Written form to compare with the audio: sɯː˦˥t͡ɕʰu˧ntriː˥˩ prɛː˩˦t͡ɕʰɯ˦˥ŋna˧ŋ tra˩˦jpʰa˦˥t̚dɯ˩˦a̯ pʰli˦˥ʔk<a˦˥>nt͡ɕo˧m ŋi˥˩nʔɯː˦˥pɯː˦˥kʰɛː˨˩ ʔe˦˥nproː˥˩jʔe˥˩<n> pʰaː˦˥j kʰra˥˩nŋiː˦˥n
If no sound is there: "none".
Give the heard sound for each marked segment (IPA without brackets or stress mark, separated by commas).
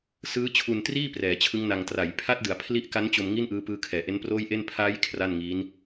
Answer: a˦˥, n